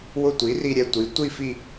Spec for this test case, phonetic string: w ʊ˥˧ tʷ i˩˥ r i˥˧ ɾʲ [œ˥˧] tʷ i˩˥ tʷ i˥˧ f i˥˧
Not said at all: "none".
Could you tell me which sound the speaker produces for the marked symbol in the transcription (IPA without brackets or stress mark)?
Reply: ɛ˥˧